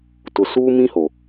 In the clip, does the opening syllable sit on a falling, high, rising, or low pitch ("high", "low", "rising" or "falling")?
low